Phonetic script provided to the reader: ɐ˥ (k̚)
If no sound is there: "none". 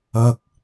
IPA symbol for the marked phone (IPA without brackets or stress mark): k̚